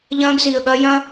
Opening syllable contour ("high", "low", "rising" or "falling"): high